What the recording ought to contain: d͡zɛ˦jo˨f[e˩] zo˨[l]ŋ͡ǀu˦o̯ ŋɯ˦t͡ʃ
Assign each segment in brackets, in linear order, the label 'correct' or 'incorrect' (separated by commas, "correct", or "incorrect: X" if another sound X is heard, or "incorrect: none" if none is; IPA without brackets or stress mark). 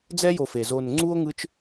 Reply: correct, incorrect: n